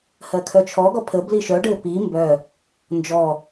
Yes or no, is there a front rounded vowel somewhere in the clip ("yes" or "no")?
yes